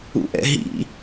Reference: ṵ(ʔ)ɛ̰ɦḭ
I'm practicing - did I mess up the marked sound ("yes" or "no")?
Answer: no